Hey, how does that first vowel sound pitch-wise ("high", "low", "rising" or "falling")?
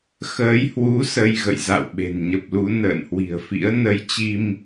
rising